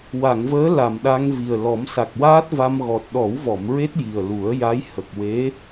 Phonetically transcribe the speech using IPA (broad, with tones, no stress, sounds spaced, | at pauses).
w a˨˩˨ ŋ v əː˧˥ l a˨˩ m ɗ a˧ ŋ v i˨˩ ə̯ l ɔ˨˩˦ m s a˨˩ k̚ w aː˦˥ t̚ v a˧ m ɣ ɔ˨˩ t̚ ɗ ɔ˨˩˦ w v ɔ˨˩˨ m ɹ e˦˥ t̚ j i˨˩ ə̯ l u˨˩˦ ə̯ j a˧˥ j h ə˨˩ k̚ w e˧˥